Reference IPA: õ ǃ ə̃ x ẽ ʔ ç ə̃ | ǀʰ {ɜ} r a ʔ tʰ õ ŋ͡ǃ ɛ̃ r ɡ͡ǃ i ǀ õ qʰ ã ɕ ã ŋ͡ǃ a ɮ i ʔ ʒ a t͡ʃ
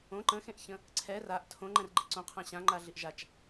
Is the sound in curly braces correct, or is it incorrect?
incorrect